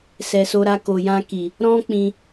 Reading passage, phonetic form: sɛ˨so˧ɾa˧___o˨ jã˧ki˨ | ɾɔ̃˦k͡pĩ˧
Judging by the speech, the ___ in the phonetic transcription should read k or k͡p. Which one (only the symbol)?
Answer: k